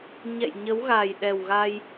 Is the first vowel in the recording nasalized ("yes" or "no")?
no